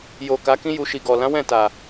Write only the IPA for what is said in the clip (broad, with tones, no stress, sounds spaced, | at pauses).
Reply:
j o˨ k a˨˦ k ĩ˦ j u˧ ʃ i˨ ɡ ɔ˨ l ã˨˦ w ɛ̃˦˨ t a˨